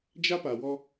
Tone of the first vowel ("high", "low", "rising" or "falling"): high